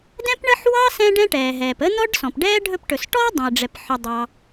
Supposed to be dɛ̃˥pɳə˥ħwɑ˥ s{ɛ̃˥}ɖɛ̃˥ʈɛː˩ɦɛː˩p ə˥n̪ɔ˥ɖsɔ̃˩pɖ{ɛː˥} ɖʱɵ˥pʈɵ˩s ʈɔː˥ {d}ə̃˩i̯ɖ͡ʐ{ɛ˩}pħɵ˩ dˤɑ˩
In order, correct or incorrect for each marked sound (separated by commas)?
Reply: correct, correct, incorrect, correct